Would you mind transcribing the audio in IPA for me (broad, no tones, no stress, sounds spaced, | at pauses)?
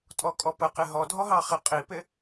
tʼ ɔ kʼ ɔ p ə q ɪ ɦ ɔ dʱ ɔ ɦ ɑ χ ɪ qʼ i p ɪ